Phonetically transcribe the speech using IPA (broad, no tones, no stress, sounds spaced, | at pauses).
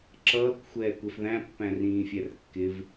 ǁ ʌː kʷ xʷ ɛː kʷ ɛ f ð æ̃ pː æ̃ r ĩː fʲ æ r kː ɪ v